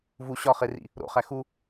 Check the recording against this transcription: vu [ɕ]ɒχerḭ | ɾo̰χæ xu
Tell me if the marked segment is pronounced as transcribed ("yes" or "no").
yes